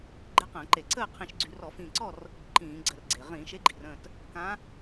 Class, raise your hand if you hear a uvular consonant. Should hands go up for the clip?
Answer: yes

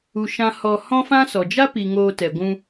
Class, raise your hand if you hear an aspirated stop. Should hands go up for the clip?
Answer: no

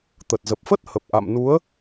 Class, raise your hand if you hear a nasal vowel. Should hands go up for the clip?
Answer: no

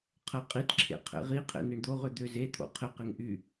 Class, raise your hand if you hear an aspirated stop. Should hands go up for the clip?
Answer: yes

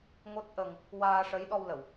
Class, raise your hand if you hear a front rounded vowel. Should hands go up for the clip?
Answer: no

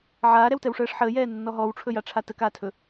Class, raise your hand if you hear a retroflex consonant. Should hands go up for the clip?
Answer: yes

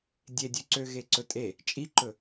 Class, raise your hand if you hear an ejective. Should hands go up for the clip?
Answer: yes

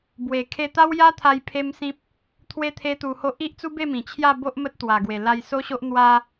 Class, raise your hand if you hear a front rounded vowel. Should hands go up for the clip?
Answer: no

